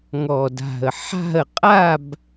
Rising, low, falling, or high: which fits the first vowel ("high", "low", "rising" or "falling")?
low